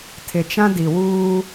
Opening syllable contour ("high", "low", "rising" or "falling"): low